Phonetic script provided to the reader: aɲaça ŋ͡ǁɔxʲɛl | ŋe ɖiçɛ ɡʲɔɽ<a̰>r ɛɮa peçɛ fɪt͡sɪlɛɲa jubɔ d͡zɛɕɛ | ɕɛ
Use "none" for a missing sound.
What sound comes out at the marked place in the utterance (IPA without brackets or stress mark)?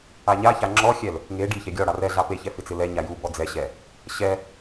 a